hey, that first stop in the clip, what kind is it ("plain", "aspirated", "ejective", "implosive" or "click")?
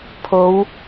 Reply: aspirated